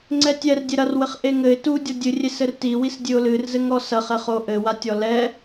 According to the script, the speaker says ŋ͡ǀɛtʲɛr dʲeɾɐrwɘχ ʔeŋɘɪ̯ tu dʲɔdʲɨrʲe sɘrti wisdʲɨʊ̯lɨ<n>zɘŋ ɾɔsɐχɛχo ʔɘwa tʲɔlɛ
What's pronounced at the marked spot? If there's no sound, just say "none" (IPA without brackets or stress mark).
r